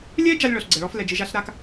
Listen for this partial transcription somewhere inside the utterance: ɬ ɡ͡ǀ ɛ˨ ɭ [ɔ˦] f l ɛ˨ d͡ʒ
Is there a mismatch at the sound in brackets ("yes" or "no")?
no